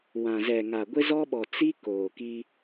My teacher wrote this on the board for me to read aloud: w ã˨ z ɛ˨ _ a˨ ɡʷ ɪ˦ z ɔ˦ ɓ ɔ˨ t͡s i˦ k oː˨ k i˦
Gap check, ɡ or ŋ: ŋ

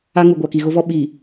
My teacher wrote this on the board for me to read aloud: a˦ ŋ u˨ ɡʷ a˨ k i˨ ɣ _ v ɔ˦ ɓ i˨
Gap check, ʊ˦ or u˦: ʊ˦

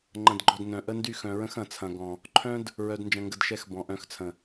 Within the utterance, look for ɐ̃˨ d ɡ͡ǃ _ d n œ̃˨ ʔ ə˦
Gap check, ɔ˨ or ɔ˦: ɔ˨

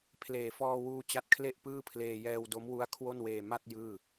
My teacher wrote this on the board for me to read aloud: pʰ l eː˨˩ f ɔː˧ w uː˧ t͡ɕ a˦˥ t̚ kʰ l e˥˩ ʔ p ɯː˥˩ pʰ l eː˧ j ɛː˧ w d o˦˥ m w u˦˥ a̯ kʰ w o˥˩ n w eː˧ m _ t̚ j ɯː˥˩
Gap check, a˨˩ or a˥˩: a˥˩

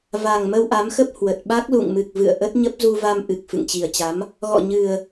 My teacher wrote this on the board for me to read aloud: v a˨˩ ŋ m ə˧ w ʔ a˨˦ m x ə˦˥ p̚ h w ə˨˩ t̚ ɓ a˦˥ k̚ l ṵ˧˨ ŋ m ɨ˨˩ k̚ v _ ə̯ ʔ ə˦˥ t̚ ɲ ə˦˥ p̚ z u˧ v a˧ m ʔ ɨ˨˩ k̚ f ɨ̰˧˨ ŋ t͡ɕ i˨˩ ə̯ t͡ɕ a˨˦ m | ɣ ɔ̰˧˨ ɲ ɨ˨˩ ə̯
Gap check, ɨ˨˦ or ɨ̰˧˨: ɨ̰˧˨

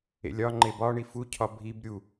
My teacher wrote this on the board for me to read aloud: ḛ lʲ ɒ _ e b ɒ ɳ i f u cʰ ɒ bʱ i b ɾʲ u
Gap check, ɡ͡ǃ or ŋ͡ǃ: ŋ͡ǃ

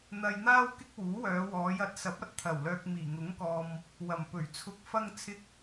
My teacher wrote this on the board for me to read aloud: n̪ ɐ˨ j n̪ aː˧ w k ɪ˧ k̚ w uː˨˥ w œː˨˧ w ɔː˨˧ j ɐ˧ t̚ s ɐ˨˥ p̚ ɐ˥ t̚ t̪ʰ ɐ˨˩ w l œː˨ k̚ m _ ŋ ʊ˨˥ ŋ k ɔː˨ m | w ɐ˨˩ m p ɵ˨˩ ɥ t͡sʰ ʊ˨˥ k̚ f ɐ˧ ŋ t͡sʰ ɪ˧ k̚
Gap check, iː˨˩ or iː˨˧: iː˨˩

